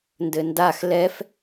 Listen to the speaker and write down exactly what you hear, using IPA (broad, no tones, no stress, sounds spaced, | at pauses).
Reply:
n d ɘ n d a x l ɛ f